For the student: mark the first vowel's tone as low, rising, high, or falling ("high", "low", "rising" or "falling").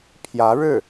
rising